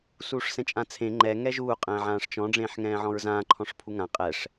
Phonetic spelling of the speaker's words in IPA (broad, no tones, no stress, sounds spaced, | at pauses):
s uː ʂ s ɛ̃ t͡ʃʼ ã t͡sʰ ẽ ŋ͡ǃ ɛ ŋ ɛ ʒ uː qʼ ɛ̃ː ʕ ãː ʂ t͡ʃ ɔ̃ ɖ͡ʐ ẽː ħ ŋ ɛ̃ː ʕ ɔ̃ ɹ z ãː ǃʰ ɔ̃ ʂ pʰ u ŋ ã qʼ ɛ ʂ